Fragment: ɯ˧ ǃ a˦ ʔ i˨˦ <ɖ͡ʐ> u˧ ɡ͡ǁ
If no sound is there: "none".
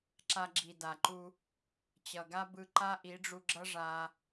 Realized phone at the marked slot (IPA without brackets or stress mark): ɖ͡ʐ